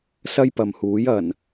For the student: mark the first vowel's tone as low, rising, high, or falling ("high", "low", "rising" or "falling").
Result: high